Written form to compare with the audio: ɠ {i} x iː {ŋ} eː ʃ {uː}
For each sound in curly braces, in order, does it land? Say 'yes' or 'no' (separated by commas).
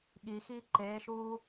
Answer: yes, no, yes